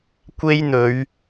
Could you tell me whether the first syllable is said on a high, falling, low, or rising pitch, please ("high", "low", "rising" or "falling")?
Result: high